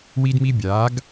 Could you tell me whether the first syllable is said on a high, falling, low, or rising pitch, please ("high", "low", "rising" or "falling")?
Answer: high